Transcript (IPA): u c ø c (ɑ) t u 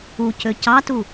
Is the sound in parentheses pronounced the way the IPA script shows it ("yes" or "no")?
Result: yes